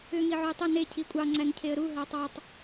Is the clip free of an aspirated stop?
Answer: no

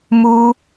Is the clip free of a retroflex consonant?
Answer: yes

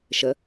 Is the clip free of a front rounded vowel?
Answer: yes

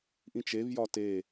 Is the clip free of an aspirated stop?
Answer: yes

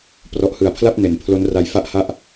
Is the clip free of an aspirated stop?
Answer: no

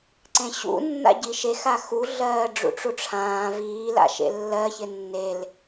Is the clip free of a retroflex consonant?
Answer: no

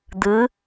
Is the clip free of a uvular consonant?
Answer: yes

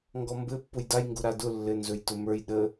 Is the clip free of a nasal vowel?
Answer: yes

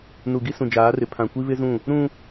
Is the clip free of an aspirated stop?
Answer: no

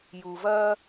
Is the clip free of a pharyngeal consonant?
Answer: yes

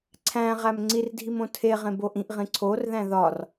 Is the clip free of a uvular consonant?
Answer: no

